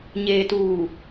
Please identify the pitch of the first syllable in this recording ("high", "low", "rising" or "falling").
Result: low